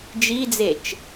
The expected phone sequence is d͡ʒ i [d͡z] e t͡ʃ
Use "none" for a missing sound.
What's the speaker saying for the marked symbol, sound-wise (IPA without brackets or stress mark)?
d͡z